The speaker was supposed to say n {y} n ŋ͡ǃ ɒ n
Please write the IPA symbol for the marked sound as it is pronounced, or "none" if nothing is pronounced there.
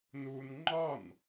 u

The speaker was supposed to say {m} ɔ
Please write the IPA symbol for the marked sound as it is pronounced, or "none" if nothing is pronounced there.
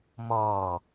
m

